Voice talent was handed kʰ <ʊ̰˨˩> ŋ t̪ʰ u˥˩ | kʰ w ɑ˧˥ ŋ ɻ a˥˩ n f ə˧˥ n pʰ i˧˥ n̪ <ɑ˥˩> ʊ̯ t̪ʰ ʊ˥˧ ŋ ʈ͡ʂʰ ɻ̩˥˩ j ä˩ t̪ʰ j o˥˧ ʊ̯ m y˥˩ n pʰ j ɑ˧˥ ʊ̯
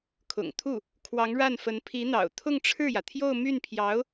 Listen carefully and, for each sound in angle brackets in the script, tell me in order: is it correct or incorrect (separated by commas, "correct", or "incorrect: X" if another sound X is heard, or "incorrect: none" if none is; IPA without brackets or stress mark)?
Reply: correct, incorrect: ɑ̰˨˩